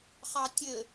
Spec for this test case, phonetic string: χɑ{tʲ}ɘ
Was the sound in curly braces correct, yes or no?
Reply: yes